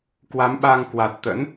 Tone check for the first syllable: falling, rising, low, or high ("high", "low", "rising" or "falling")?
rising